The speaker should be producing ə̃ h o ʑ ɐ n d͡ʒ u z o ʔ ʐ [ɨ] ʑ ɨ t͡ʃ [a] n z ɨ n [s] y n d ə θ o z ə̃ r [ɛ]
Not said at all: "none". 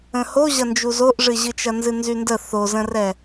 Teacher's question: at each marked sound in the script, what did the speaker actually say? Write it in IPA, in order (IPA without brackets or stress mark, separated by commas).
ɨ, ɐ, z, ɛ